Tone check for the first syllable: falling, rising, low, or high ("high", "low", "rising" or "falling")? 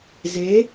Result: rising